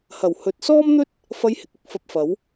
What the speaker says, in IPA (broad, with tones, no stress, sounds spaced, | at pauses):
h ɐ˨˩ w h ɵ˨ t̚ s ɔː˥ m n̪ ɵ˥ t̚ | f ɐ˧ j h ɪ˨ k̚ ɪ˧ k̚ f ɐ˧ p̚ f ɐ˨˥ w